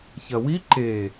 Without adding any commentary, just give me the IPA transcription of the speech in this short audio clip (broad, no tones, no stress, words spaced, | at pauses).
çɐwi ǃe